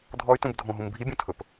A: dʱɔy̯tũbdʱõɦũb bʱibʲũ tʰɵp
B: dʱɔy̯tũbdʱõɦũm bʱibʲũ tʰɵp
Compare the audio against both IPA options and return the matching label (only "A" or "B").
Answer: B